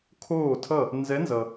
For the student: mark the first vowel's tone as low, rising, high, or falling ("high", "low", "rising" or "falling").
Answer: falling